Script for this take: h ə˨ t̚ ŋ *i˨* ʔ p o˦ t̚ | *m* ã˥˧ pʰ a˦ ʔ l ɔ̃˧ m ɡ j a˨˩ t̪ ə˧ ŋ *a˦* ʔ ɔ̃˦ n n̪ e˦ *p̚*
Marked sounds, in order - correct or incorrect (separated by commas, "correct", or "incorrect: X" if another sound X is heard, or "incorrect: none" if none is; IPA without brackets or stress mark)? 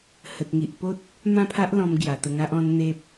correct, correct, correct, correct